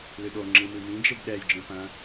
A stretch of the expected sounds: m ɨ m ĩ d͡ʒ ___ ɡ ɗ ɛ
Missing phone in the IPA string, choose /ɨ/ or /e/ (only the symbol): e